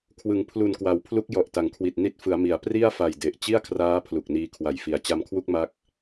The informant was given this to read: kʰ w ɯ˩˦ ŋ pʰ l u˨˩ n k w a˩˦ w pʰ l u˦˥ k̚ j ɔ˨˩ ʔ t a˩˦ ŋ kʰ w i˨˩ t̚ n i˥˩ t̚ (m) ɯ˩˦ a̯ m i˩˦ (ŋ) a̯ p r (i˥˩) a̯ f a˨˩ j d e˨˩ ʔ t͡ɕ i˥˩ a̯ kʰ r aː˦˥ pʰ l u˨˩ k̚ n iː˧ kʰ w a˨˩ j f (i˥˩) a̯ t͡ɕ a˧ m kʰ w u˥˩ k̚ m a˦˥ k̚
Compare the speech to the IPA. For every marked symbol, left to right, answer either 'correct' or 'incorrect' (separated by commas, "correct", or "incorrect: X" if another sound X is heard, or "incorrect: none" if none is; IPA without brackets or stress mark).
incorrect: f, incorrect: none, correct, incorrect: i˨˩